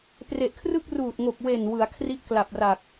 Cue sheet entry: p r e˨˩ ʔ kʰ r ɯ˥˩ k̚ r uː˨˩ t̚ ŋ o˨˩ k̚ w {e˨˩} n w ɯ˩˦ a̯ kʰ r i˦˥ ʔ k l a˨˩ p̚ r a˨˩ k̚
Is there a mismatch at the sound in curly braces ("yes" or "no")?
no